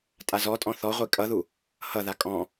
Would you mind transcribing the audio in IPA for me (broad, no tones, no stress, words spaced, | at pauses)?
tʼazɔtʼɔ̃ θɔʁʷi kʼʌðu | hʌða kʼɔ̃